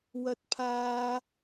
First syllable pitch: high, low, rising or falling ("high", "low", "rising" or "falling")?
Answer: high